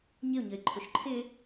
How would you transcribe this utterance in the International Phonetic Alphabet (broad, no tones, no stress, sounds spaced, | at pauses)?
ɲ ɪ ʊ̯ ɲ ə ɪ̯ ǃʰ ʊ ʃ ǃʰ ɪ